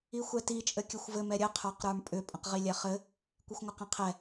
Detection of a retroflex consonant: absent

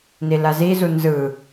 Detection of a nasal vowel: absent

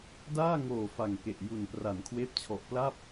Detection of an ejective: absent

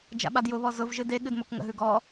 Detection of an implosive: present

